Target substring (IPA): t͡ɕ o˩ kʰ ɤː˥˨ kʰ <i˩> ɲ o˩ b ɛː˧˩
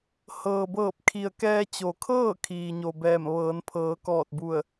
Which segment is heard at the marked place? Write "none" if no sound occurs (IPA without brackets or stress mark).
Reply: iː˩